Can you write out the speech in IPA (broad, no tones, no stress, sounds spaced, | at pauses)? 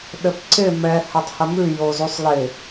ɗ ɘ p ǀ ɪ m ɛ h ɘ tˤ h ə m ʉ j o z u sˤ l ɪ